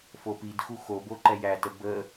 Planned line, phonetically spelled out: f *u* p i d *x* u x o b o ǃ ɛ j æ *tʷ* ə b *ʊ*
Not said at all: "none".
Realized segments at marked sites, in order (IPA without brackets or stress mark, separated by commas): o, x, t, ə